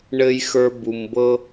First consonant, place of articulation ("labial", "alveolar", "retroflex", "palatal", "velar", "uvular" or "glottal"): retroflex